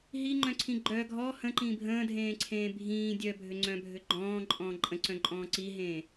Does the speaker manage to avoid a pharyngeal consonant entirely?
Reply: yes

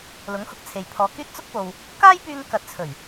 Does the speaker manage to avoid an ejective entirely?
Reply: yes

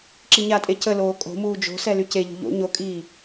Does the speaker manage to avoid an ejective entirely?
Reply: no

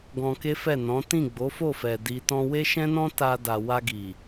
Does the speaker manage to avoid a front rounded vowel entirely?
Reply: yes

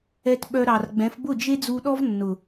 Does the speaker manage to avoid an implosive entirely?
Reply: no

